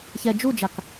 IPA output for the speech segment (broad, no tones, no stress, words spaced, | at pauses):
çɛ d͡ʒud͡ʒak